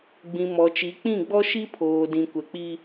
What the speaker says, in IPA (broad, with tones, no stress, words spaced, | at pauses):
ɡ͡bĩ˨mɔ˨t͡ʃi˨˦k͡pĩ˦˨ ɡ͡bɔ˦ʃi˦pʰoː˨dĩ˨ kʷɛ˨k͡pi˦